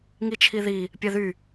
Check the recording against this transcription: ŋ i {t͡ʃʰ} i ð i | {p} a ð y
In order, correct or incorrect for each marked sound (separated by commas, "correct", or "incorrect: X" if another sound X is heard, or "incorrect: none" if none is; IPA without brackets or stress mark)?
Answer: correct, incorrect: pʲ